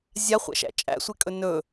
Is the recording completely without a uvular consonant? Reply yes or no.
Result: no